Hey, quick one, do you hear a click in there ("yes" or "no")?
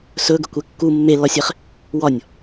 no